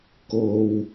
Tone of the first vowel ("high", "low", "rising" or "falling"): low